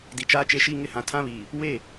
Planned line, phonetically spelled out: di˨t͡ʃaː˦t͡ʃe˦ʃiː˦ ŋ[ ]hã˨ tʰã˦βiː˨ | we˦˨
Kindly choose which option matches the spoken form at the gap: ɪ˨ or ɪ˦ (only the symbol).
ɪ˦